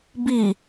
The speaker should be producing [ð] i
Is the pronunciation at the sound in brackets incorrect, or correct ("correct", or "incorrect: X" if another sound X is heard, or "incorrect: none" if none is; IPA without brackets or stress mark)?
incorrect: b